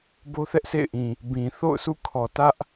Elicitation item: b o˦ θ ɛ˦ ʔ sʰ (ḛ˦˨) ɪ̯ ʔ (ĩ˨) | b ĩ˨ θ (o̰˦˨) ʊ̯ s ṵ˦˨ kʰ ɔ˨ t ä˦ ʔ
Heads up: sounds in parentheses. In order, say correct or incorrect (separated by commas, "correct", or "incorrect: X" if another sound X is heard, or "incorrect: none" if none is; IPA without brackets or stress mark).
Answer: correct, correct, correct